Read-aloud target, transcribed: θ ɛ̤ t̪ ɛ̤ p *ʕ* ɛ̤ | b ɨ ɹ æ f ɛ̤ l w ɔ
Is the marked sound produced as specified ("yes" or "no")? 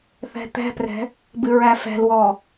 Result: no